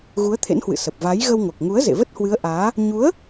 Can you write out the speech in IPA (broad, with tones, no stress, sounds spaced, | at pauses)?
ɣ u˨˦ ə̯ t̪ʰ ḛ˧˥ n h w ɨ̰˧˨ s ə˨˩ p̚ v a˨˦ j ɣ ə˧ w ŋ o˨˩ k̚ ŋ u˨˦ ə̯ z ḛ˧˨ v ə˦˥ t̚ h w ɨ˨˦ ə̯ ʔ aː˨˦ | ɲ u˨˦ ə̯